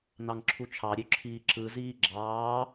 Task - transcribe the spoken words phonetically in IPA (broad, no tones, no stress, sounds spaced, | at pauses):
n ɑ ŋ ǁʰ u t͡ʃʰ ɑ ɾʲ ø ǁʰ iː ǁ ɯ z iː ɡ͡ǁ ɑː